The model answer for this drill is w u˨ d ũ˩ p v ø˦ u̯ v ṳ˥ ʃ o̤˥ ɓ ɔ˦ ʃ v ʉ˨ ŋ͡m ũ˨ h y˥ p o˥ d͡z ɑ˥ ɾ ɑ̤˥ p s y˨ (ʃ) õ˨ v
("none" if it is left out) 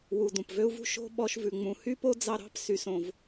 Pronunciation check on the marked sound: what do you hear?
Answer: s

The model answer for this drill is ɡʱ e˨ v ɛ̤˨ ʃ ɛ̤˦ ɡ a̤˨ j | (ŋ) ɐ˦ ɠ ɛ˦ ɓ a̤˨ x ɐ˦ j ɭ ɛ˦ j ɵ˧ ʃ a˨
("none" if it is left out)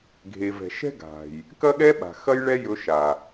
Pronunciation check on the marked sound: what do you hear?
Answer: k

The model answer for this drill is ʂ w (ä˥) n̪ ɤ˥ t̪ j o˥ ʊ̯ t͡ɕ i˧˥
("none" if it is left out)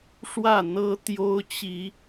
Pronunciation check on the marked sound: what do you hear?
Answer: ä˥˩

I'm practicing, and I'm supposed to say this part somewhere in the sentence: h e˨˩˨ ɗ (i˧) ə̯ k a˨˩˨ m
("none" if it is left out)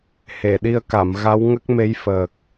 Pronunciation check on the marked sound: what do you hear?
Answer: i˧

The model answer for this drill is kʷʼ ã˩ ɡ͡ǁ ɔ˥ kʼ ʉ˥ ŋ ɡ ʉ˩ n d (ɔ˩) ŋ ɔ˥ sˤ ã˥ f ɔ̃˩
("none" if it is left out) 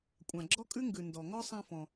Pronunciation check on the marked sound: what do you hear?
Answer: ɔ˩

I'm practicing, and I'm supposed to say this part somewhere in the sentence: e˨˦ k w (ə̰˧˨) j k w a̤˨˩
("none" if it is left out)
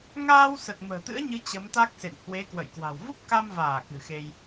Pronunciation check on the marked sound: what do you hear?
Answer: ə̰˧˨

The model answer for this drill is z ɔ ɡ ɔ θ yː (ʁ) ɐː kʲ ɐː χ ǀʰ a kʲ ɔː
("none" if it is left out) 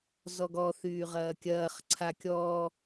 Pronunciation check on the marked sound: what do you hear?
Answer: ʁ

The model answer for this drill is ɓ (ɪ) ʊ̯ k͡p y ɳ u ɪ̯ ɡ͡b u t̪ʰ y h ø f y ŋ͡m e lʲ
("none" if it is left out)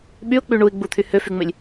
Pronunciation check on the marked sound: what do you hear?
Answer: y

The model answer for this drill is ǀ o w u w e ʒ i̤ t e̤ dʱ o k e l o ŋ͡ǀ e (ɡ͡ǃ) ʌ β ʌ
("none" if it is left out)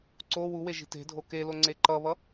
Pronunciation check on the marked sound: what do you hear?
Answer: ǃ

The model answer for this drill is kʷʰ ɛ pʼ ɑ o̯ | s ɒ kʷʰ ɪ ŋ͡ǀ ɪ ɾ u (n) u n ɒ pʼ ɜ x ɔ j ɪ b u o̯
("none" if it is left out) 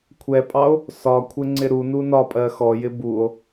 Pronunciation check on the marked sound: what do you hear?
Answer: n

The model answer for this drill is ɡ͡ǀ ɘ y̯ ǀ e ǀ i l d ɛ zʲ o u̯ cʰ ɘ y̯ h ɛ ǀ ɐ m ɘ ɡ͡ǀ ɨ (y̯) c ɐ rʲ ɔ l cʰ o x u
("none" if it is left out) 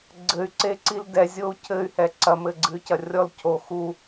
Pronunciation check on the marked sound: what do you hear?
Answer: y̯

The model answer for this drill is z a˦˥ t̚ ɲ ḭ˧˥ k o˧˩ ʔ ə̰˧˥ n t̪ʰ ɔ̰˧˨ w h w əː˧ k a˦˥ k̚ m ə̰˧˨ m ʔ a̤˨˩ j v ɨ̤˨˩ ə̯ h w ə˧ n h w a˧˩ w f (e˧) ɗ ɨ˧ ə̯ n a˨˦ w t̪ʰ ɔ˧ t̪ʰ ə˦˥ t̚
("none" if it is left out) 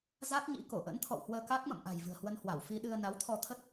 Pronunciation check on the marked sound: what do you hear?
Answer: i˧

